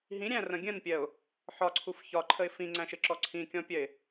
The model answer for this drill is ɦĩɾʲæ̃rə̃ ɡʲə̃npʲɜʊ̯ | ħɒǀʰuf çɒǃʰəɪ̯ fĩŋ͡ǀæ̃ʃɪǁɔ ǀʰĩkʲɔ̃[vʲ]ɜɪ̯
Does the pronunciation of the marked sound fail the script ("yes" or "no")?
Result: yes